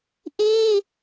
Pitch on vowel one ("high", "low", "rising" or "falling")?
high